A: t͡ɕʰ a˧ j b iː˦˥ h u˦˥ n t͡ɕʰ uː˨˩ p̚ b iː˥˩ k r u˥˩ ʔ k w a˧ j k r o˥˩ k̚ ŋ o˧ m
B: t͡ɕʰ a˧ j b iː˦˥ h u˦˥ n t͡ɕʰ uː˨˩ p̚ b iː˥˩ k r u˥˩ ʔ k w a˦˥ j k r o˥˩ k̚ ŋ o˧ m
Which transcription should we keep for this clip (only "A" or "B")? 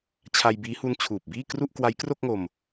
B